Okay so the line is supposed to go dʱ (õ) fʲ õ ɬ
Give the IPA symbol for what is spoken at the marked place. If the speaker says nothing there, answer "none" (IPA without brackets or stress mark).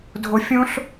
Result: o